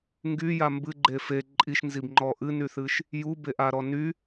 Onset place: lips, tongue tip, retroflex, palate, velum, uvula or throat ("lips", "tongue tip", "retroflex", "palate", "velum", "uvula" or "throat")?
velum